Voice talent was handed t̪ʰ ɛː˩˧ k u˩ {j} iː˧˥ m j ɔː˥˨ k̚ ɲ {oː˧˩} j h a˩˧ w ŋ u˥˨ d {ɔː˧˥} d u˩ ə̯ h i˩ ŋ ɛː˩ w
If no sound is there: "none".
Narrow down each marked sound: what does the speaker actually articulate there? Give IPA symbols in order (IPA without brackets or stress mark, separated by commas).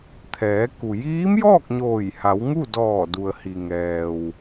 j, oː˧˩, ɔː˧˩